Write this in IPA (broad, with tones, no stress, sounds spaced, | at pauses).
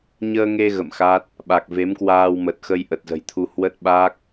ɲ əː˧ ŋ e˧ ɣ ə̰˧˨ m x a˦˥ t̚ | ɓ a˨˩ k̚ v e˨˦ m k w aː˧ w m ə˨˩ t̚ x ə˧ j ʔ ə˨˩ t̚ z ə̤˨˩ j t̪ʰ u˧ h w ə˦˥ t̚ ɓ aː˦˥ k̚